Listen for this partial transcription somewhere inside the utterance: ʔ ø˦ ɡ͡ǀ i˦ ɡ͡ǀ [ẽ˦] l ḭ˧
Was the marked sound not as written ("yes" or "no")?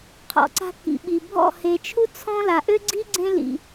no